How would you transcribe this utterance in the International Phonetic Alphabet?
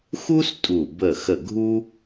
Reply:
xu˥s tʼu˧˩ bə˧˩xə˧˩ ɡʱu˥

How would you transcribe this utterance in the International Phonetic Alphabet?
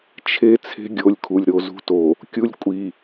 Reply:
t͡ʃʰe˦ t͡sʰe̤˦ɡʲo˨˦lʲkʰu˨lʲ ɾo˨zṳ˦to˨ | kʲu˦lʲkʷʼi˨

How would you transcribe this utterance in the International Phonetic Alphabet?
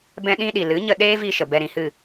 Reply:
bɛ̃˦ɗĩ˦ɗi˨ lɨ˨˦ɲə˧ɗeː˦vi˧ ʃə˨bɛ˧ɾĩ˨hɨ˦˨

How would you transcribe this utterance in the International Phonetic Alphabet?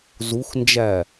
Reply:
zuxnd͡ʒæ

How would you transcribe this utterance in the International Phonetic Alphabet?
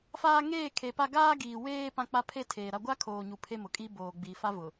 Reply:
faː˦ ŋeː˦˨kʰe˨pa˦ ɡaː˦ɡiː˨ weː˦ pã˦k͡pa˦ pʰe˦˨ tʰeː˨ɾa˦ ɡʷa˦kʰoː˨ɲu˨ pʰe˦mʊ˨kʼi˦ boː˨ɡ͡biː˨ fa˦vʊ˨

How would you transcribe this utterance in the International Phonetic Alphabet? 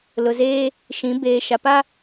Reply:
lʊ˨zeː˦ | ʃĩ˨˦ beː˨ʃa˨ pa˦

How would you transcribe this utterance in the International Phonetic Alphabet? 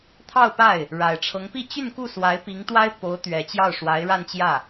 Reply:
t̪ʰɑ˥˧ʊ̯pa˥˩ɪ̯ | ɻa˨˩ɪ̯ʈ͡ʂʰɤ˧˥ŋpi˥˧ t͡ɕy˥˧nku˥˩swa˧˥ɪ̯ pi˧˥ŋt̪wa˥ɪ̯ po˧˥ʊ̯t̪ɥɛ˨˩ t͡ɕjɑ˥˩ʊ̯ʂwa˧˥ɪ̯ɻa˥˧nt͡ɕjä˥˩

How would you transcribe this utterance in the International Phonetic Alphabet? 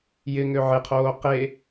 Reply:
jɪŋø ʕɪqʰoː qe

